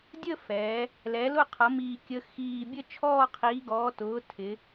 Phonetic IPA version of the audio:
dʲ ə˦˨ f ɛ˩˧ | l ɛ˩˧ l ʊ˦˨ qʰ ʌ˩˧ m iː˨˩ kʲ ə˩˧ x iː˨˩ bʲ ə˦˨ t͡ʃʰ ɔː˦˨ qʰ iː˩˧ ɡ ɔː˩˧ t ʊː˩˧ tʰ ɪ˩˧

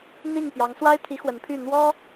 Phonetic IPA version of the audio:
n̪ i˥˩ ŋ p j ɑ˧˥ ŋ s w a˥ ɪ̯ t̪ʰ i˧˥ x w ə˧˥ n pʰ y˥˩ n̪ w ɔ˥

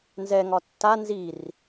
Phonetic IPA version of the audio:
n z ɛ ŋ ɒ tː a n z i r

